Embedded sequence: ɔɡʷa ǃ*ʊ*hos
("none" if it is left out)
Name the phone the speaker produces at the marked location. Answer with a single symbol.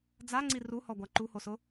u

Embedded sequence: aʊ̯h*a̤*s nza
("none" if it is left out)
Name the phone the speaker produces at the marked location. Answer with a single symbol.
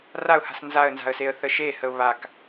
a̤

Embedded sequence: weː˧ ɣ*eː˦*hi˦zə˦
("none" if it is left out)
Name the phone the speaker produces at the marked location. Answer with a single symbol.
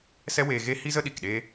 e˦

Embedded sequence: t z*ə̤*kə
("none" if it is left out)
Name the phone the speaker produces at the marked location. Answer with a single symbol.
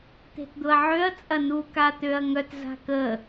a̤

